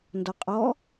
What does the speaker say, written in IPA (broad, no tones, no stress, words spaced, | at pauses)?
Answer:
ndɔqʼɔ